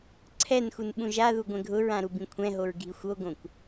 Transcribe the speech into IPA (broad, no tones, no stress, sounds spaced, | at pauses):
ǀʰ ɛ n x u n ɓ ũ ʒ a ð u ɡʷ ɛ̃ ɡʱ ʊ ɹ ã ɾ u b ĩ kʷʰ ɛ̃ ɦ o ɹ ɡʱ i xʷ o ɡ õ kʷ